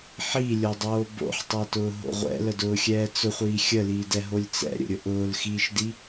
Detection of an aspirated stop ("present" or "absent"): absent